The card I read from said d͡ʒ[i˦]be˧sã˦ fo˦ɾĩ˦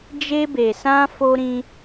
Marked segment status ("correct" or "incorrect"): incorrect